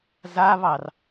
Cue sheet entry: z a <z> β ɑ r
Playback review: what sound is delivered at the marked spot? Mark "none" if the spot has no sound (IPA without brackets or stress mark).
none